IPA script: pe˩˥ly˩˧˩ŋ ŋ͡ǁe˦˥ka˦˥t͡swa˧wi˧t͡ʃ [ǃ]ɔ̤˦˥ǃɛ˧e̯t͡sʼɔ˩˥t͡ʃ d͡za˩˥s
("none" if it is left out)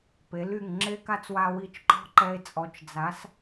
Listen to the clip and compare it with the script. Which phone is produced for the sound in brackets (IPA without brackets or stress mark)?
ǃ